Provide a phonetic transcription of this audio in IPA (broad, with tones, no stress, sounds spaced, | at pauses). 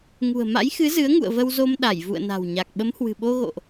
ŋ ṳ˨˩ ə̯ m a̰˧˥ j x ɨ˨˦ z ɨ˨˦ ə̯ ŋ ṵ˧˨ ə̯ v ə˧ w z o˧ m ɗ a˧˩ j v ṵ˧˨ ə̯ n a̤˨˩ w ɲ a˨˩ k̚ ɓ ə˨˦ m h w ɨ̤˨˩ ɓ o˧ ɣ o̰˧˨ ʔ